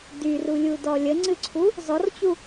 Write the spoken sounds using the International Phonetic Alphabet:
d y r u lʲ u d ɔ lʲ ə ŋ͡ǀ ɨ ǀʰ u | z ɔ r t͡ɕ u

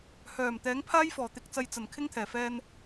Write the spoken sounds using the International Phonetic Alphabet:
h œː˨˩ m t̪ ɛː˨˥ ŋ pʰ aː˥ j f ɔː˨˩ t̪ ɪ˨ k̚ t͡s ɐ˨ j t͡s ɐ˨˩ n kʰ ɪ˥ ŋ t̪ʰ ɛː˨˩ f ɛː˧ n

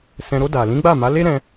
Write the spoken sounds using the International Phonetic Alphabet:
s ɛ̃˧ ɾ o˧ d a˨ l ĩ˨˦ ɡ͡b a˦˨ m a˨˦ l e˦ ɾ ɛ̃˧

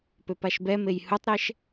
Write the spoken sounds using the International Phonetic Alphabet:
p ø p a ʃ b ɛ m e j h u tˤ ɾ ɛ ʃ

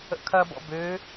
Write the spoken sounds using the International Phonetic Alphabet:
ə̰ kʰ ɐ b ɔ̰ b ø

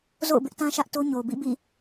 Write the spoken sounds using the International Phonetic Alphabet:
z o̰˦˨ ʊ̯ b ɪ˦ ʔ t ã˦ ʃ ä˦ ʔ t o˦ ɲ o˨ b ḭ˦˨ b ḭ˦˨

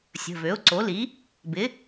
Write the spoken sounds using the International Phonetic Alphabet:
sʲ ə̤˩˧˩ v ø˩˥ ʊ̯ ǀ o˩˥ l i˩˥ | b ɪ˩˥

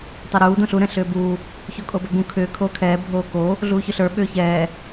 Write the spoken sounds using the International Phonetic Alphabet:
tˤ ɛ ɾ uː d õ ɬ u ɾ ɛ̃ ɬ ʏː b uː | ç o kʼ o b ɛ b ũ kʰ ʏː kʰ oː kʰ ɛː bʱ oː k o | ɮ uː ç ʏ ɬ ə˞ ɓ ʏː ç ɛː

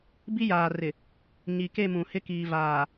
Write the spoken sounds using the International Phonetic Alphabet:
b i˦ j aː˨ r ɪ˨ | ɲ i˨ k e˦˨ m ũ˨ h ɪ˦ k iː˨ v aː˨

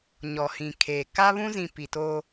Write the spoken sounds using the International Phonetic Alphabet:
ɲ ɔ˨ h ĩ˨ kʰ eː˨ k a˦ β ũ˦ z ĩ˨ p i˨ t oː˦

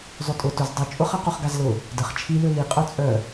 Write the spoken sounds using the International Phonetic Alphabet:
zˤ ø tʼ ʊ t ʊ z dˤ y t͡ʃʼ ʊ χ ɐ q o χ ɡ a z l ʊ | d ə χ t͡ʃʰ i l ø l i qʼ œ t͡sʼ œ

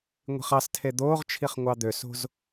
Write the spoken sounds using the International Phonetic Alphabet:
ŋʷ i̤ χ ɑ s tʰ e d̪ oː ʁ t͡ʃʰ i χ ŋʷ ɑ d̪ ø s o̤ z

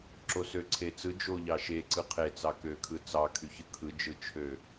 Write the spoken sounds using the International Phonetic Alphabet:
ǁ o s ø ǀʰ e t͡s ɯ d͡ʒ o ʎ ɑ ʃ e ǀ ɯ qʰ e t͡s ɑ k ø kʰ ɯ t͡s ɑ kʰ y ç ɯ kʰ ɯ d͡ʒ ɯ t͡ʃʰ ø

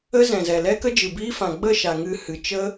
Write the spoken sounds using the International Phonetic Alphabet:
ə˦ z ɛ̃˨ z ɛ˨ l ɛ˦ k ə˦ d͡ʒ ɨ˨ b iː˦ f ã˨ ɡ͡b ə˦˨ ʃ a˨ ŋ ɨ˧ h ɨ˨ t͡ʃ ə˦

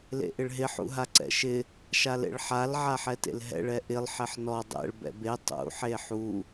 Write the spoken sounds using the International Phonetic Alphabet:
l ḛ ʔ ɪ ɭ ɦ ɪ ħ ṵ ɦ a ǀ ɛ̰ ʃ ɪ | ʃ a l ḛ ɭ ħ a l ʕ a ħ ɛ t ḛ l ɦ ɛ̰ ɭ ɛ ʔ ɪ lˠ ħ ɛ ħ n ɔ dˤ ɛ̰ ɭ b ɛ̰ b e tˤ ṵ ħ e ħ u

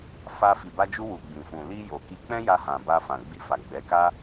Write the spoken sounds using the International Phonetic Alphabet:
f a˧ f i˨ b a˧ d͡ʒ u˧ w u˨ ɡ͡b ĩ˨ f ũ˨ l i˧ j o˨ k i˧ k͡p ɛ̃˦ j a˧ h ã˨ b a˧ f ã˨ ɡ͡b i˧ f a˨ ɡ͡b ɛ˨˦ k a˦

